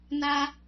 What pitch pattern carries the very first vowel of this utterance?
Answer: high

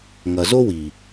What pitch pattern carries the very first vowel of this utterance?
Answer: low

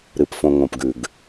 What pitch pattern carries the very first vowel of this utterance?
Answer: low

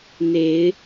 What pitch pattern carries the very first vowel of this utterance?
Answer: rising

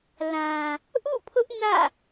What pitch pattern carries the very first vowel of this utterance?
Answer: low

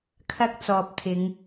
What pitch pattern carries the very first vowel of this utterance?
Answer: high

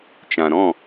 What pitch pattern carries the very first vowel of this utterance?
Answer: low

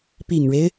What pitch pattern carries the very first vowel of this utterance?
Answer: low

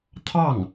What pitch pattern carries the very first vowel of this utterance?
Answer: falling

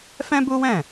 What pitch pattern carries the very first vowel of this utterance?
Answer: high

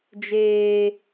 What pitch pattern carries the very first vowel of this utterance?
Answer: high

